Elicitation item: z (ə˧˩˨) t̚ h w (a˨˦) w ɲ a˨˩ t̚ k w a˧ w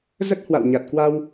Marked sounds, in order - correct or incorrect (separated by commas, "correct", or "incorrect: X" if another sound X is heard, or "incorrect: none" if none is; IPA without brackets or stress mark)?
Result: incorrect: ə˦˥, incorrect: a̰˧˨